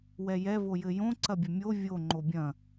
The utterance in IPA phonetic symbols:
w ɛ j ɛ v o j ɘ j õ ǀ ɐ bʲ ɐ mʲ o vʲ o ŋ͡ǃ o bʲ ɐ̃

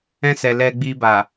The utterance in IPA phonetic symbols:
ɛ̃˧ s ɛ˨ l ɛ˧ ɡ͡b i˧ b a˨

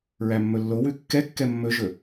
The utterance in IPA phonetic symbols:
ɹ æ mː ɵ lː o w ʉ kː ɛ kː ɛ mː ɵ ʒ ɵ

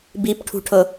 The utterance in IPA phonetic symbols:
b i p ʈʰ ṳ ʈʰ ɤ

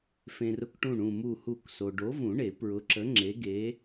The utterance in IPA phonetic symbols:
f ẽ˨ r ʊ˦˨ k ʈ ũ˦˨ ɳ ũ˦˨ m u˦˨ h u˦˨ k s o˨ ɖ o˨˥ v ũ˨˩˦ ɳ e˨˩˦ p ɹ ʊ˨˥ ǁ ə˨˥ ŋ͡ǁ e˨˥ ɡ e˨˥

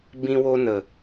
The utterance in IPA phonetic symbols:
b ĩ˧ w o˧ n ə˨

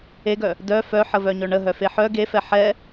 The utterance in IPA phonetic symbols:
e ɡ œ | d œ f œ ħ ə v œ ɲ œ ɳ ə ɦ œ f e ħ œ ɡ e f ɛ ħ ɛ

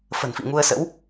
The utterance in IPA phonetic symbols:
f ə̤˨˩ n f ḭ˧˨ ŋ u˧ ə̯ s ə̰˧˥ w

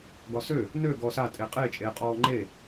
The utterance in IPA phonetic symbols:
ɡ ɒ s ø | n ø ɡ ɔ s a tʼ e qʼ e t͡ʃʼ e qʼ ɔː ŋ͡ǃ e

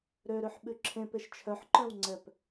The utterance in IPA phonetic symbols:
ɾ ø ɾ ø ħ ɓ ʉ ǁʰ ẽ p e ʃ t͡ʃʰ œ ħ ǃ œ̃ w ŋ͡ǀ ɛ p

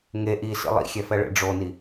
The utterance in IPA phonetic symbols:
ŋ e ʔ i s ḭ lˠ ḭ xʲ ɛ f ɛ ɭ ḛ ɖ͡ʐ o n i

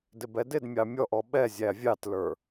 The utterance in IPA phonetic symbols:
d ɪ b ɛ d ɪ d mʲ ɑ mʲ ɔ ʔ ɔ ɓ ɛ zʲ æ vʲ ɑ t l ə˞

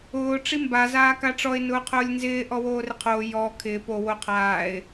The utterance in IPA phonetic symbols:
ʊː ʈ͡ʂ i m b a z aː k a ʈ͡ʂ ɔ ɪ̯ n ʊː qʰ ʊː lʲ n z ɪː ʔ ɔ w oː r ɪ qʰ oː j ɔ kʰ ɪː p o w o qʰ aː ɪ̯

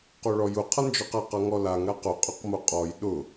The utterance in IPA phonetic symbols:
q o ɭ ɔ j ʊ qʰ ʌ n d͡ʒ ɔ q a q ʌ ŋ ɔ l a ŋ ɾ a q ʊ qʼ ʊ q m o qʼ ɔ j ɗ ʊ

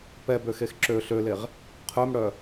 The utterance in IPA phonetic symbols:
p ɛ b ø x e x ǁ ø ɬ ø l e ʁ | qʰ œ m ɽ œ

